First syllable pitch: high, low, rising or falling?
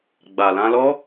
low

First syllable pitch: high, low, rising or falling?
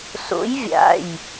rising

